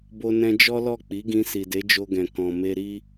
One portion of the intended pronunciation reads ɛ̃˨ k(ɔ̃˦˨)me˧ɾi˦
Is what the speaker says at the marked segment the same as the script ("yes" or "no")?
no